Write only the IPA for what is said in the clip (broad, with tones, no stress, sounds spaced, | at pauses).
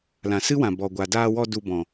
l ã˨ s ɨ˦ w ã˨ b ɔ˨ ɡʷ a˨ d aː˧ w ɔ˧ d u˧ b ɔ̃˨